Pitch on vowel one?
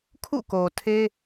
falling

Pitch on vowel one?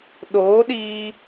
rising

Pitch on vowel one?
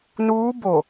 rising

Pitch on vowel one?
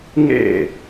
falling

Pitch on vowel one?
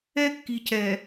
high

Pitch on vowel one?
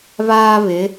high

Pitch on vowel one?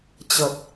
low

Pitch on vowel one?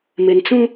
low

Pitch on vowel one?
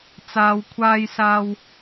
low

